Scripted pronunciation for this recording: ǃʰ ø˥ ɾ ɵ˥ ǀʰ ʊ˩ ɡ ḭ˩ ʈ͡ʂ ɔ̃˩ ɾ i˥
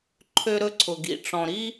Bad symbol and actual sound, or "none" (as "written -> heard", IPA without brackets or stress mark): none